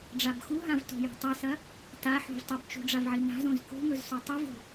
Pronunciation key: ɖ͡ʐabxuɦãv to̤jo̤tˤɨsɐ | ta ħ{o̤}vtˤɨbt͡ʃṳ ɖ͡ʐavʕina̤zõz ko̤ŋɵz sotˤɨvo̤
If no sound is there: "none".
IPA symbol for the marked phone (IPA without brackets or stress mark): o̤